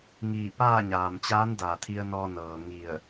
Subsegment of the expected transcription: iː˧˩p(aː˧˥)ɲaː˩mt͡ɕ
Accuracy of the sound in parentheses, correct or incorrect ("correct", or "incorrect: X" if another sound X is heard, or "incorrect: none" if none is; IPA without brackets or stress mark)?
incorrect: aː˥˨